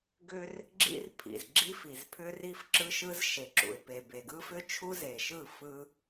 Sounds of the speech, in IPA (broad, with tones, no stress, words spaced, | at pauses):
ɡʏ˦r | ɡ͡ǁḭ˦rpʰḭ˨z ɡ͡ǁi˦ fi˨z pʰʏ˦ri˦fǁɯ˦ʃɯ˦z ʃe˨ǁṵ˨ɪ̯pe˨ be˨ɡɯ˦fʏ˦t͡ʃʰu˦ ze˨ʃɯ˦˨fɯ˦